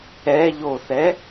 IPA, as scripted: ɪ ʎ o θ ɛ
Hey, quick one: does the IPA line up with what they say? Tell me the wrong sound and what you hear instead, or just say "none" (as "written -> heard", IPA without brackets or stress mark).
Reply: ɪ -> ɛ